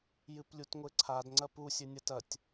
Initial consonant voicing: voiced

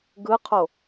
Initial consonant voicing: voiced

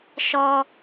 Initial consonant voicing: voiceless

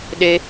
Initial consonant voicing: voiced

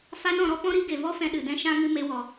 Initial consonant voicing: voiceless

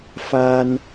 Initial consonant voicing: voiceless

